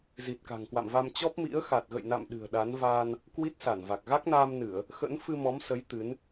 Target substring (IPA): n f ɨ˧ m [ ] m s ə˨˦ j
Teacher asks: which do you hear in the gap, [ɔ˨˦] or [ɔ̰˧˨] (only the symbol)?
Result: ɔ˨˦